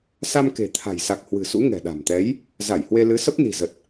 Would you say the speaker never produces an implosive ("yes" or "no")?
no